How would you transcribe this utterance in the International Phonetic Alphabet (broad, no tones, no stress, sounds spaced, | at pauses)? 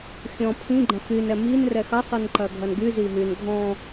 xʲ ɔ̃ pʰ ĩ ɡ͡ǃ ɐ̃ x y n ɛ m i n r ɛ x ɐ sˤ ɨ n ǃ ɐ ɡʱ ɐ n ɡ y z i ɦ y n ɡʱ ɔ̃